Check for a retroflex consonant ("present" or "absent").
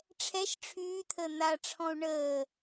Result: present